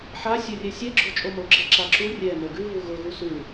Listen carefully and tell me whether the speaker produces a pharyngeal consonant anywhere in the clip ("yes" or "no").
yes